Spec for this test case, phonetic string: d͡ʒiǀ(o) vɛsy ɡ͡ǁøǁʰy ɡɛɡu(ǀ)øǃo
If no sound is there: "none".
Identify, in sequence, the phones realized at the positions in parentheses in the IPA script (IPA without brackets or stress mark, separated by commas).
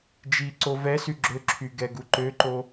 o, ǃ